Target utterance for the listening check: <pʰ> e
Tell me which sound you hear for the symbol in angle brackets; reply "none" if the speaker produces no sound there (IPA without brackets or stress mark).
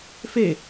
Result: f